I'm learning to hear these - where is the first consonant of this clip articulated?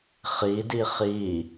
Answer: uvula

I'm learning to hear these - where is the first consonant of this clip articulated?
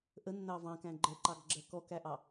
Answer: throat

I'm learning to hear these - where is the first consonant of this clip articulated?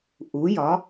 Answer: throat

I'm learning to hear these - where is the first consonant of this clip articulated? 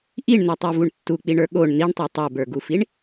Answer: throat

